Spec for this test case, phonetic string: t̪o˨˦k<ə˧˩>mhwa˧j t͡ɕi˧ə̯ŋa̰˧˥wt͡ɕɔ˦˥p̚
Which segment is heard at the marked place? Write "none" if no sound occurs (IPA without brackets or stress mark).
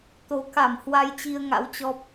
a˧˩